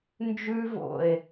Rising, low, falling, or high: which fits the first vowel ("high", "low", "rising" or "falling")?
high